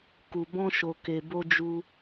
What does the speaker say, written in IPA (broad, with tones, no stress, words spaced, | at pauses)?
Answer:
ku˨bɔ̃˧ʃo˨ ke˨bo˧d͡ʒu˧